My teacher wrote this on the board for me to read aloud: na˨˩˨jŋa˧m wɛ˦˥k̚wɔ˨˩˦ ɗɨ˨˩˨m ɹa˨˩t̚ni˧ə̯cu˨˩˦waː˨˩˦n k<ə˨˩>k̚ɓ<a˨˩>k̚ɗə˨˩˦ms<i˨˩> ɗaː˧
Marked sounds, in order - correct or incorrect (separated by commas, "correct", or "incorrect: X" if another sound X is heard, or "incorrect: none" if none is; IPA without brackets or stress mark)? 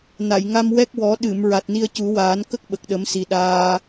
incorrect: ə˦˥, incorrect: ə˨˩, correct